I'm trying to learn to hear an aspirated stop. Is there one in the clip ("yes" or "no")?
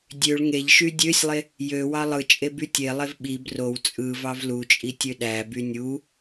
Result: no